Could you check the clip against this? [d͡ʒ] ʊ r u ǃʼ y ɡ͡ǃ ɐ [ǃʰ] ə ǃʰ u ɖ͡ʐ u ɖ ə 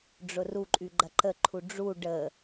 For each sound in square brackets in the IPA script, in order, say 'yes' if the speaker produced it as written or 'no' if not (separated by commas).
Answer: no, no